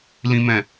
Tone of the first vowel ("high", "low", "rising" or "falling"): high